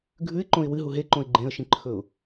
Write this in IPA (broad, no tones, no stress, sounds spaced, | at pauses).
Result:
ɡʱ ʉ ɪ̯ ǃ õ ɪ̯ w ɨ ɦ u ɦ e ǃ õ ɪ̯ ɡ͡ǃ ẽ ə̯ ʃ ĩ ǃʰ ɵ ʊ̯